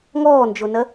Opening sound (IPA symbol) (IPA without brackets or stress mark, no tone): ŋ